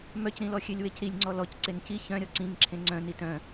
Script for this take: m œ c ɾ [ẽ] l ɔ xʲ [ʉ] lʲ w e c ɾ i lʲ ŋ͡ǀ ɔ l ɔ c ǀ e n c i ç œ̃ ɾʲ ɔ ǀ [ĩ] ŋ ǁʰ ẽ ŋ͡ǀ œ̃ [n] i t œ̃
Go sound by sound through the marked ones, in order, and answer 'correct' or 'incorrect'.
incorrect: ĩ, incorrect: ø, correct, correct

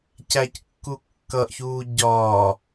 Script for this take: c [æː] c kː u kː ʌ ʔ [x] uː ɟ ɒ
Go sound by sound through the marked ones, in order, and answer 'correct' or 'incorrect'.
incorrect: æ, incorrect: ç

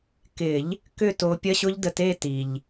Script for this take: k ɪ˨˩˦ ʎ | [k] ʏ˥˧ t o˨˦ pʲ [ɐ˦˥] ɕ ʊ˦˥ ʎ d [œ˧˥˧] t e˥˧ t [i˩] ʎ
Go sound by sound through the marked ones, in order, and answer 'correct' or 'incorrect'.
correct, correct, incorrect: ə˧˥˧, correct

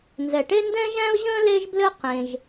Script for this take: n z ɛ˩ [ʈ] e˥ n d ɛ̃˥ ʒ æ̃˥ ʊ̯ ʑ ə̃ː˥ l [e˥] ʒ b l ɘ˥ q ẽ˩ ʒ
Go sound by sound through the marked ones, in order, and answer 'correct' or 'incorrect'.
correct, correct

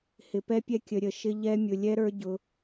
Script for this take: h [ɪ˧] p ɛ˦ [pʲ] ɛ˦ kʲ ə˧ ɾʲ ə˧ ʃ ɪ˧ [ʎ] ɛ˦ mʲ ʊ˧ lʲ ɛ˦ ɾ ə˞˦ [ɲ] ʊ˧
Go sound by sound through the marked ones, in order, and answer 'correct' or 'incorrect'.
correct, correct, correct, incorrect: ɟ

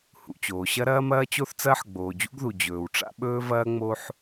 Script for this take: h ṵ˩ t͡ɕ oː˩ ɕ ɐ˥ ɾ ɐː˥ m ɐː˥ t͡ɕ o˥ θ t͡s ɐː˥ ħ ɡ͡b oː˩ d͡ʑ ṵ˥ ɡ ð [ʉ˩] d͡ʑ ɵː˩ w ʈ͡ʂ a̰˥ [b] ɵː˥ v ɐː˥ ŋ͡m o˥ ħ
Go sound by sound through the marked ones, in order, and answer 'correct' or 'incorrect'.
incorrect: u˩, incorrect: ɓ

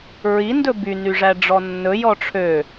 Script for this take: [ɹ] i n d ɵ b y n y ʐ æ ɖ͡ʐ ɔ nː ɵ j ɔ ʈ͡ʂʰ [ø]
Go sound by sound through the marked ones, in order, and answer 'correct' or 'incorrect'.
correct, correct

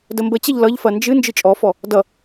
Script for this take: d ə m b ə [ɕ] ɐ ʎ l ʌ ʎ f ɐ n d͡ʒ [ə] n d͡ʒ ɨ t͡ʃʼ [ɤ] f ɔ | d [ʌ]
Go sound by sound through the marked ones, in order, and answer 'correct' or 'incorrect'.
incorrect: t͡ɕ, incorrect: ɨ, incorrect: ɔ, correct

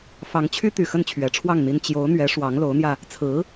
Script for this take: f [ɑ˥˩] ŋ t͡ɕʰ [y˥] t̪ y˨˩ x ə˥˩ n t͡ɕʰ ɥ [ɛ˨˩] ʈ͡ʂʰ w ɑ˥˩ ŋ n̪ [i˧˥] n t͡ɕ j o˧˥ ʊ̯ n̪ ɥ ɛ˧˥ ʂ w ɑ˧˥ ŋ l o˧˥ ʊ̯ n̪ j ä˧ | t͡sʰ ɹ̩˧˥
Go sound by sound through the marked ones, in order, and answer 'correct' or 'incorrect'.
incorrect: ɑ˧˥, correct, correct, incorrect: i˥

